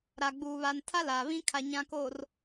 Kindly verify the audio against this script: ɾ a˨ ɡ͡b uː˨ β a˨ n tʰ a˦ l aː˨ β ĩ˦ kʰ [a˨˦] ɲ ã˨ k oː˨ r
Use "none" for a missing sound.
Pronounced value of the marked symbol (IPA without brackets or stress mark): a˨